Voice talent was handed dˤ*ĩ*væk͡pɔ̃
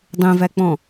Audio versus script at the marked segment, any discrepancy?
yes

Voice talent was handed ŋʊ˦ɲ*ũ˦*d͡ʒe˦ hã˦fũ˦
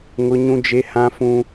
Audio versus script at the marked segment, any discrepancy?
no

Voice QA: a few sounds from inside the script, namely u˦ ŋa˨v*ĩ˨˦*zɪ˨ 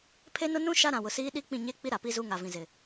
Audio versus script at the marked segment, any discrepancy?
yes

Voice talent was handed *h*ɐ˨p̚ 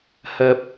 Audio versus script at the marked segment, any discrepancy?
no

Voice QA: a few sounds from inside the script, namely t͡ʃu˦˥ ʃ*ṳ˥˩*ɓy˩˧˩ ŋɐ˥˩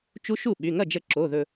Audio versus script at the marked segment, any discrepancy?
yes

